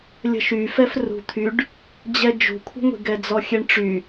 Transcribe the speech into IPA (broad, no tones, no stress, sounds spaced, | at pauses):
lʲ ə̤ ʃ y f ɛ f r ṳ t̪ʰ y ɖ | d͡ʑ ɛ d͡ʒ ṳ kʷʰ ə̤ ŋʷ i̤ ɡ ɛ d͡z ɔ xʲ e ɳ ʈ͡ʂ y